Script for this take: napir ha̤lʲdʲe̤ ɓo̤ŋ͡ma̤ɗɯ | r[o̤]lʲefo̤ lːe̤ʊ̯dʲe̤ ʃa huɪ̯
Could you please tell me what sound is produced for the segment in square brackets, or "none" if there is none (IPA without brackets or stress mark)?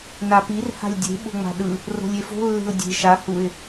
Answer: o̤